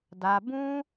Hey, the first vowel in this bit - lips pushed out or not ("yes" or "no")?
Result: no